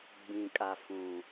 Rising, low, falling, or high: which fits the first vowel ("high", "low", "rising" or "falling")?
low